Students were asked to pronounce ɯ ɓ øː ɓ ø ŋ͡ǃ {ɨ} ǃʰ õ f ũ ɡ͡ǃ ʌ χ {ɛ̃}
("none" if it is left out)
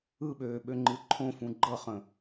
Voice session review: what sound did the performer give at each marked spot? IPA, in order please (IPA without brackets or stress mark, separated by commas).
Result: ɨ, ə̃